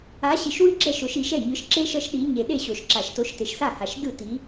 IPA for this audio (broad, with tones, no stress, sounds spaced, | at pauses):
a˨˦ ɕ i˨ ʃ w ɯ˦ ɡ͡ǁ ɛ˥˩ ʃ o˨˩˦ ʃ i˨˩˦ ʃ ɛ˥˩ ɲ ɯ˨˦ ʃ ǁ e˦ ʃ ʌ˦ ʃ ɗ i˨˦ ɲ e˨ ɗ e˥˩ ɕ o˨˩˦ ʃ ǁ a˨˩˦ ʃ t o˨˦ ʃ t e˨ ʃ s a˥˩ h a˨ ʃ d ɯ˥˩ t i˨˦